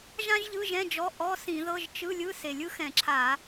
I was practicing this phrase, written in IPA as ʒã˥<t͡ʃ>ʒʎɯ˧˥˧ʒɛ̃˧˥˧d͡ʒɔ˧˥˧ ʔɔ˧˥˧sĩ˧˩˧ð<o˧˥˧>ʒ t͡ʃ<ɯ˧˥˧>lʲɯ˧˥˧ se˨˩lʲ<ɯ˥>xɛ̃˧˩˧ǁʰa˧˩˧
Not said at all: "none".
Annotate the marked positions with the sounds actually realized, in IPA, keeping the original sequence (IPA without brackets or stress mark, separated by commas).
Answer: none, ɤ˧˥˧, ɯ˧˥˧, ɯ˥